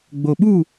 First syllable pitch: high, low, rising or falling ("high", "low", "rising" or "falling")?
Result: low